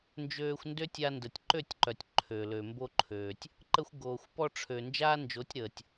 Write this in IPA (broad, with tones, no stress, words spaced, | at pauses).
nd͡ʒøː˧xʷndø˦tʲa˧ ndə˨tʲǃø˦˨tʲǃœ˨tʲ ǃʰø˨lø˨ mbo˧ǃʰøː˨tʲ | ǃə˧xʷɡoː˨xʷpɔ˧ʈ͡ʂʰø˨ nd͡ʒaː˦nd͡ʒo˨˦tʲɾəː˨tʲ